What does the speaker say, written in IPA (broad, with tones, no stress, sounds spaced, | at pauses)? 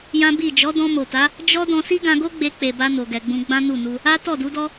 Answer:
j ã˦ b i˦˨ d͡ʒ ɔ˨˦ d ɔ̃˧ m o˨ t a˨˦ | d͡ʒ ɔ˦ d ɔ̃˧ s i˦ ɡ ã˧ ɡ o˦ ɡ͡b e˧ k͡p e˨ b a˧ n o˨ ɡ ɛ˨ ɡ͡b ũ˧ ɡ͡b ã˦ n u˦˨ n u˧ | a˦ t ɔ˦˨ d u˨˦ d ɔ˦